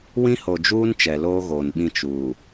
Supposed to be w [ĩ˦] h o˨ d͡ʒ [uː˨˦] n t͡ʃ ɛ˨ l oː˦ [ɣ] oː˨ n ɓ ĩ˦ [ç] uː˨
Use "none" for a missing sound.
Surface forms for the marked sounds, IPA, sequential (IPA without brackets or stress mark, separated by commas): ĩ˦, uː˦, ɣ, t͡ʃ